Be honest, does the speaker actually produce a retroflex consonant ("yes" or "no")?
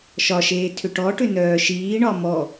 yes